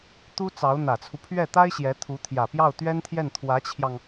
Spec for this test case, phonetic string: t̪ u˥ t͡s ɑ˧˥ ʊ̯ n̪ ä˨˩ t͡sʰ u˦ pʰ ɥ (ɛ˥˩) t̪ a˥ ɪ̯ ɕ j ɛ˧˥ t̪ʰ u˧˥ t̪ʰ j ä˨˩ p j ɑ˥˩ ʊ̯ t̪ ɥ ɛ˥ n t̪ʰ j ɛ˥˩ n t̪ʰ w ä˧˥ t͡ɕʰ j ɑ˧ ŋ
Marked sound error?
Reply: no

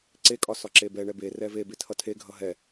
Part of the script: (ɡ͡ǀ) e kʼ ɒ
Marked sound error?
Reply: yes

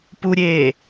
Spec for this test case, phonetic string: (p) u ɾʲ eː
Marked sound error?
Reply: no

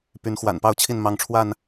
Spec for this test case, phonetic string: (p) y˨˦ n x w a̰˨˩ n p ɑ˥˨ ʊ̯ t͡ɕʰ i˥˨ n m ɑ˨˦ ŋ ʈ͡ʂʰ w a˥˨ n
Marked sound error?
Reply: no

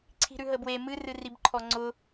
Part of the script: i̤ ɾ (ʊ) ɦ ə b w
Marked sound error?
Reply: yes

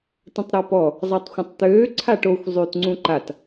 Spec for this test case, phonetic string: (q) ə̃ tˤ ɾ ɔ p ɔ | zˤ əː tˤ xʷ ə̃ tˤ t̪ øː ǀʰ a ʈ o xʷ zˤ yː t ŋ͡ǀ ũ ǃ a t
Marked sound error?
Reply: yes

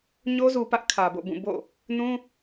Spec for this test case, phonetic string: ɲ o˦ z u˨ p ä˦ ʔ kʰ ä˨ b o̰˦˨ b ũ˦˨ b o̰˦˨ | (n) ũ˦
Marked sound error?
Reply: no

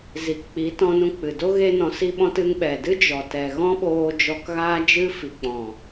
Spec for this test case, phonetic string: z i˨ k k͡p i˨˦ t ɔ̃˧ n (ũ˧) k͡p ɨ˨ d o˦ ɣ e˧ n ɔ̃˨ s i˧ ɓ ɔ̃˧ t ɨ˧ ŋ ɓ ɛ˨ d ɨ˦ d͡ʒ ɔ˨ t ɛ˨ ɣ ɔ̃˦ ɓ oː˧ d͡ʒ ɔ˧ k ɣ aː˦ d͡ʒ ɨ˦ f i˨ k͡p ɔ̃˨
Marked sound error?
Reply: no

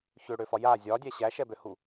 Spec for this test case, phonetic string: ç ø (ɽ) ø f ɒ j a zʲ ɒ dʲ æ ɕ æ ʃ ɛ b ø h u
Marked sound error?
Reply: no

